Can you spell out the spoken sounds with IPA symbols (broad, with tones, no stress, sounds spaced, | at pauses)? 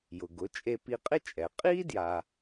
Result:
j ʊ˩ ɡ ʊ˩˥ t͡ʃʼ e˧ p i˧ qʼ ɪ˥ t͡ʃʼ ɛ˩ qʼ i˥ d j a˧